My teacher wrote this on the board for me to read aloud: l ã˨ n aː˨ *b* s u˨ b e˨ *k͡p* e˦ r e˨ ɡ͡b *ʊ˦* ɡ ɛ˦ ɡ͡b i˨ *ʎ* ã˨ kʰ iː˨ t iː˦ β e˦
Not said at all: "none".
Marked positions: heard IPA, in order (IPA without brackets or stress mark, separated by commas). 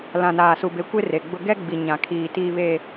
none, kʷ, ʊ˦, ɲ